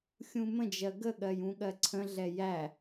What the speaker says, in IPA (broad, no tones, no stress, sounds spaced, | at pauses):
xʲ ũ m ə̃ d͡ʒ ɜ ɡ ə ɠ ɜ j ũ ɠ ɜ ǀʰ ə̃ ɮ ɛ j æ